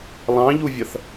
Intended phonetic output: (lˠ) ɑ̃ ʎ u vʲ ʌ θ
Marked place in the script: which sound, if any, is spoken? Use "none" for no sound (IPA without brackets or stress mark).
lˠ